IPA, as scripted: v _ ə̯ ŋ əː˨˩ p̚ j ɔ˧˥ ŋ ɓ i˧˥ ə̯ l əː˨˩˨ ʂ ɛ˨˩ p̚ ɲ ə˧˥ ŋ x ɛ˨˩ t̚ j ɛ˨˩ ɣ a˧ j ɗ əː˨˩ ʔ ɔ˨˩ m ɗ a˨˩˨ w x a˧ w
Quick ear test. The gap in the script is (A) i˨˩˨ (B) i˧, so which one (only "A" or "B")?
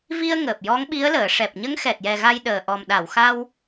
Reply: B